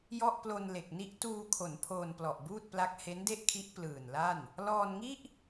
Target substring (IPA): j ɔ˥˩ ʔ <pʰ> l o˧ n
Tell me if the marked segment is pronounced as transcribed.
no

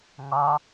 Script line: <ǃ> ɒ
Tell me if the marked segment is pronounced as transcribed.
no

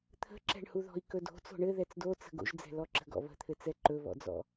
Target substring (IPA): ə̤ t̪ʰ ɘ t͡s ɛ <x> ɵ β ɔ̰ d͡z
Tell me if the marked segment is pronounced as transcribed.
no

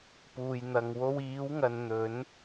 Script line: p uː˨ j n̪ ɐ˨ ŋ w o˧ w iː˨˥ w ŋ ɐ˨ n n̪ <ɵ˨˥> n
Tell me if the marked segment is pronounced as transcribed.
yes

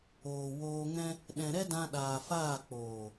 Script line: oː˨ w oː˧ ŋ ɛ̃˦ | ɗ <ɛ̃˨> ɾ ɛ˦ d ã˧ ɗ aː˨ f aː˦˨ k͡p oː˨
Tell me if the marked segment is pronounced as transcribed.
yes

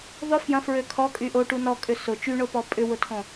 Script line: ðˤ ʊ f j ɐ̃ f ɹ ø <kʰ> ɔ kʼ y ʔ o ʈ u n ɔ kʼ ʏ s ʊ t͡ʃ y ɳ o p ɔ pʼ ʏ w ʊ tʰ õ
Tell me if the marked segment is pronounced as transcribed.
yes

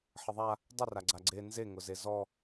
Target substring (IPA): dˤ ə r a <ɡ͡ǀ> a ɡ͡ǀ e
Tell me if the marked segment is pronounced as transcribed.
yes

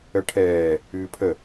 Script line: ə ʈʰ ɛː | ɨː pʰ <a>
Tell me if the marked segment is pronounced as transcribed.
no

